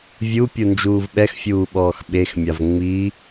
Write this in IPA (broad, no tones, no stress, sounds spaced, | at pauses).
vʲ u pʲ u n d͡ʒ uː v ɓ ɛ x fʲ uː ɓ ɔː x ɓ e x mʲ a v ŋ͡m i